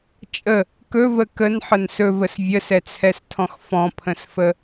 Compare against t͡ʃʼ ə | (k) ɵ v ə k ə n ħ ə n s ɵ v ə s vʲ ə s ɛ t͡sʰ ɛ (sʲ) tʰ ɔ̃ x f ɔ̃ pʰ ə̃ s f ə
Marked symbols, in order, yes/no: yes, no

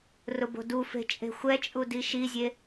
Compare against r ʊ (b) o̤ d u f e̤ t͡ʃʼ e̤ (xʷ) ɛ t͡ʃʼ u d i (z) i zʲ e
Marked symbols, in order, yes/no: yes, yes, no

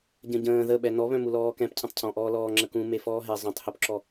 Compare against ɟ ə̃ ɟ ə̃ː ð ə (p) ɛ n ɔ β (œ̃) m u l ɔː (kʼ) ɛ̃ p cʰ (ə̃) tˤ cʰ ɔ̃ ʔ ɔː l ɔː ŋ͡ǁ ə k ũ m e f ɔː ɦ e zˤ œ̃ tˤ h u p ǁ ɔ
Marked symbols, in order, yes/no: no, yes, no, yes

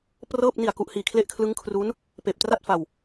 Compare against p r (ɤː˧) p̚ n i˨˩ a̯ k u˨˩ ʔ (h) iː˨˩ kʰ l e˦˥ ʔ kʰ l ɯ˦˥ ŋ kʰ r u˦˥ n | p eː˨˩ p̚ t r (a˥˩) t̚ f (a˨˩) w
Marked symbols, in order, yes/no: no, yes, yes, no

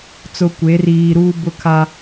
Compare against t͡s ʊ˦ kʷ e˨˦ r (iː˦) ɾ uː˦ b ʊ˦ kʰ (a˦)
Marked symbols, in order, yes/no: no, yes

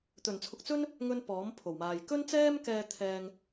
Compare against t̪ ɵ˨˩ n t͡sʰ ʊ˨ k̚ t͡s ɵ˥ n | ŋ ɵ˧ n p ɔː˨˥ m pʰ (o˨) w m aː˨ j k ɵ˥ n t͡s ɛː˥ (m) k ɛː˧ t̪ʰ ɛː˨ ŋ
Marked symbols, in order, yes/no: no, yes

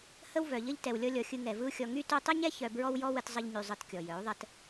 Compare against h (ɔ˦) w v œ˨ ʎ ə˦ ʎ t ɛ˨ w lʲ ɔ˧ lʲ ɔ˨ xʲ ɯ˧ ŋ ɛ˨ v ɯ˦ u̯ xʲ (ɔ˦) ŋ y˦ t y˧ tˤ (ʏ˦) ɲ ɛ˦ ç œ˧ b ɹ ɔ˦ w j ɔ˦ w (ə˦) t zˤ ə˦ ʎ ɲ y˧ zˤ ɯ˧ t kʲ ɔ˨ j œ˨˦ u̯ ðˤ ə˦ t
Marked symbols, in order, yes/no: no, no, no, no

